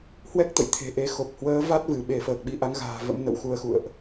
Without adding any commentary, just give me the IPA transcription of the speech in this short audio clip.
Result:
h w ɛ˦˥ k̚ t̪ ə̰˧˨ j t̪ʰ e̤˨˩ ʔ e˧ x o˨˩ p̚ h w əː˨˦ v a˦˥ t̚ v ɨ˧˩ ɓ e˧˩ f əː˨˩ k̚ ɓ i˧ ʔ a˨˦ ŋ ɣ a̤ː˨˩ v ə̰˧˥ m n ə̰˧˨ w x u˧ ə̯ x ṵ˧˨ ə̯ ʔ

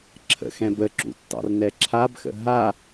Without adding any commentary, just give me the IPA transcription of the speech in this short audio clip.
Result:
ǁʰ ə̰ x ɛ̃ b ə ǁ ṵ tː ɑ̰ r n ɛ ǁʰ a b x ə̰ ɦ a

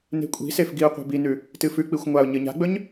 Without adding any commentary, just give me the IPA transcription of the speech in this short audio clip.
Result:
n e̤ kʷʼ i̤ s e f ɡ i ʊ̯ qʷ e̤ b i n ʉ | t ɨ f ʉ k͡p i xʷ ŋʷ a ʊ̯ ɲ ɨ ɲ a̤ ɡ͡b ɵ ɲ

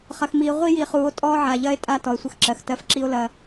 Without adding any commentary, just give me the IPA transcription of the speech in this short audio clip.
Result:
χ ɐ˨ x m iː˨ ʁʷ i˦ j i˨ χ uː˨ o̯ tʼ ɔː˦ ʕ a˨ ʎ ɐː˦ e̯ tʼ a˦ t ɔ˨ e̯ sʷ ə˦ x ǁ ɜ˨ x t ɜ˦ f ǁ i˦ o̯ l ɐ˦

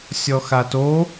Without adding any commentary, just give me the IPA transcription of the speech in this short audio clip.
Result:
sʲ ɔ x a t o

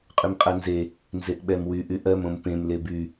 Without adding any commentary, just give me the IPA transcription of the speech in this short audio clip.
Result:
qʼ y m qʼ ɜ n z e | n z e ʔ ɓ ɛ m w y ʔ y ʔ ɜ m õ m p ẽ m l e b y

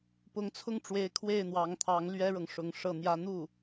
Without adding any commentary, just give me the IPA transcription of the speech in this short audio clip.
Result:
p ʊ˧˥ ŋ t͡sʰ ʊ˥˩ ŋ ʈ͡ʂ w e˧˥ ɪ̯ kʰ w e˥˩ ɪ̯ n̪ w ɑ˧˥ ŋ t̪ʰ ɑ˧˥ ŋ l ɥ ɛ˥ ɻ ɤ˨ ŋ ʂ ʊ˧˥ ŋ ʂ ɤ˥˩ n̪ j ä˥ n̪ u˥˩

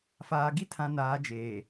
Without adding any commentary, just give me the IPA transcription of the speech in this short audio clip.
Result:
f aː˨ ɡ i˦ tʰ ã˨ n aː˨˦ d͡ʒ eː˨

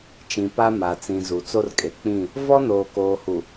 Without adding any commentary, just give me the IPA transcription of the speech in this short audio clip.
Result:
t͡ʃ ĩ˨ p a˦ m a˨ t͡s ĩ˨ z u˨ t͡s o˦ r kʼ e˨ k͡p ĩ˦˨ | v ɔ˦ n oː˨ k oː˨ h u˨

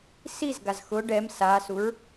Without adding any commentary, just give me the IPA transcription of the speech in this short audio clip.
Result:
s i z ɡ a z x ʊ ɖ ɛ m s a s u ɹ

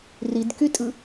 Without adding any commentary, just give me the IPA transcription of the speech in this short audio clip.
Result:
r i d k y tʼ ɯ

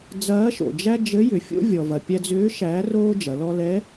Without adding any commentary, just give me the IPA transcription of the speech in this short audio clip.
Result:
d͡z ɐː˧˥ ʃ o̰˩ d͡ʒ æ˥ d͡ʒ ɘ˧˥ j ʏ˩ fʲ o̰˥ vʲ ɔ˩ v ɐ˩ pʲ æ˧ d͡z ʏː˧˥ ʃ æː˧˥ r oː˥ d͡ʒ ɐ˩˧ l ɔ˧ l ɛ˧˥

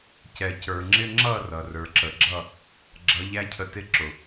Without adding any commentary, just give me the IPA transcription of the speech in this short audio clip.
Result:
c ɛ˨ c ə˞˨ ŋ͡ǁ ɪ˦ ŋ͡ǁ ʌ˦˨ r ʌ˨ r ə˞˨ ǁ ə˨ ɡ͡ǁ ʌ˦˨ | ɡ͡ǁ ʌ˨˦ ʎ æ˦ cʰ ə˧ t ɪ˦˨ ǁ ʊ˨

